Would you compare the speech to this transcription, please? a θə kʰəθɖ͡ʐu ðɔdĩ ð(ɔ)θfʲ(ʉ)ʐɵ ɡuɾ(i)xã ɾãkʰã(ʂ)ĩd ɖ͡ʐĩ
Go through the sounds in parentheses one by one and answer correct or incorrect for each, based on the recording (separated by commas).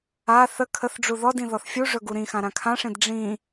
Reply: correct, incorrect, incorrect, correct